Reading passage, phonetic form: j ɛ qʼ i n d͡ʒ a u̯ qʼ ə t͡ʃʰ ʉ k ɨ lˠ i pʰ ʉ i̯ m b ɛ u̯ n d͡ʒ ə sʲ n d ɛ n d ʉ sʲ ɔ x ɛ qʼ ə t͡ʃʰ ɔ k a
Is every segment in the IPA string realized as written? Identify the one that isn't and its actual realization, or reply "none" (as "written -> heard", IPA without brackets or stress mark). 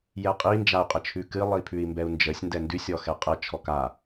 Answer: none